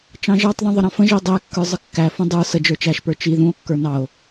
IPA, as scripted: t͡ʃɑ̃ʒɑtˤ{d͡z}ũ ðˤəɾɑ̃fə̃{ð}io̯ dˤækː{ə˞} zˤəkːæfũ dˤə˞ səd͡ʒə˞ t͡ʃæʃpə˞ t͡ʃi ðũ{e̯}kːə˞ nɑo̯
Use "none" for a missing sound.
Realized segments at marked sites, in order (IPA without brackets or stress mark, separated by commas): ð, ʒ, ə˞, o̯